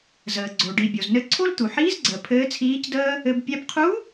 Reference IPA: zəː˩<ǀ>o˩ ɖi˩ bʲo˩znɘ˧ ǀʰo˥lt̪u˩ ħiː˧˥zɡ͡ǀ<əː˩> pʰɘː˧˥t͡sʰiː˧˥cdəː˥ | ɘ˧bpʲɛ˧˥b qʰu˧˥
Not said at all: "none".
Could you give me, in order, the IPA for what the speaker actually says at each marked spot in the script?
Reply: ɡ͡ǀ, əː˩

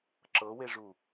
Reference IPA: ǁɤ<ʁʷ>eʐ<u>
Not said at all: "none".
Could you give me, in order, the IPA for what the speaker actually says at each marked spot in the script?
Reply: w, u

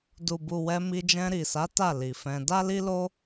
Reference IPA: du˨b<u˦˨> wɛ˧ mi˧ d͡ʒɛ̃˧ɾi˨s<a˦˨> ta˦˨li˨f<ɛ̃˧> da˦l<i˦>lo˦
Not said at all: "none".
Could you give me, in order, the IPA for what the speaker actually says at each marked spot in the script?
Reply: u˨, a˨˦, ɛ̃˧, i˦

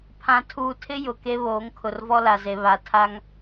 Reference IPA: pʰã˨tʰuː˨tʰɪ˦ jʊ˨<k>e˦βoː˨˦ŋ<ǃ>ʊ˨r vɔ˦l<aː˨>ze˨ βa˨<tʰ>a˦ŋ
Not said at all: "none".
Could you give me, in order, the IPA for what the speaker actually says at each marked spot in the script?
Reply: k, kʰ, a˨, tʰ

